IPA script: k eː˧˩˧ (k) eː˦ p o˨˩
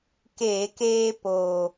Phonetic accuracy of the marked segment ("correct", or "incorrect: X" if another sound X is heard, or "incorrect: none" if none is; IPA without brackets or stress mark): correct